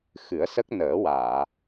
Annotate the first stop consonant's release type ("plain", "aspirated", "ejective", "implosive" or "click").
plain